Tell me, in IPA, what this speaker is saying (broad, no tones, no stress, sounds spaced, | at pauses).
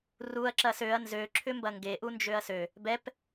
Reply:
r u ɐ̯ ǁ ɐ s ø ɐ̯ n z ø ǁʰ ʏ m b ɐ ŋ ɡ e ʔ u n d͡ʒ ø ɐ̯ s ø | b ɛ p